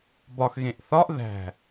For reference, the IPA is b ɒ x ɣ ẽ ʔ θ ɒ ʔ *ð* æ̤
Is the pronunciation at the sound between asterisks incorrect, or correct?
correct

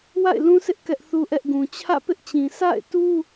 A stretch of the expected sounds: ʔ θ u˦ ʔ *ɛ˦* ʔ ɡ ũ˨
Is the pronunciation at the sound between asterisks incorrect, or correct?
correct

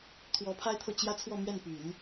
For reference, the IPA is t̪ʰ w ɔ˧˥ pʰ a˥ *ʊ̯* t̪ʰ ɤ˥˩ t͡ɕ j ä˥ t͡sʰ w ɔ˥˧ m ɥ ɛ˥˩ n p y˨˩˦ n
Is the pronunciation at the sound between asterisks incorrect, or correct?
incorrect: ɪ̯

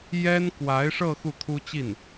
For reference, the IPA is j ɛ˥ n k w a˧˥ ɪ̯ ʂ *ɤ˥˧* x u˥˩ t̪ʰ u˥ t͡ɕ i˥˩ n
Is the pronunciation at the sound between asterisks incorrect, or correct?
correct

